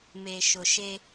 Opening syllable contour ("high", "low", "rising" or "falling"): low